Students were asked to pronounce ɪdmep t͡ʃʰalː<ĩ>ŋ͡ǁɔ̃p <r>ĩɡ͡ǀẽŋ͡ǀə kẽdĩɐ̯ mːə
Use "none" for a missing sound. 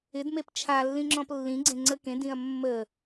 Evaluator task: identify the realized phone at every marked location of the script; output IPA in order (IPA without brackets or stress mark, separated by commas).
ĩ, lː